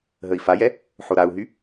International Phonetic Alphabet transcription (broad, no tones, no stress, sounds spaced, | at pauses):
ɦ ə i̯ f a j ɛ | ħ o ɾ a u̯ ɦ y